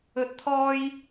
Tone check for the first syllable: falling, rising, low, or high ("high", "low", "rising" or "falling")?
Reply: rising